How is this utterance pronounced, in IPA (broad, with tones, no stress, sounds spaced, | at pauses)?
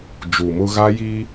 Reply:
d͡ʒ u˨ m ʊ˦ ɣ a˦ j i˦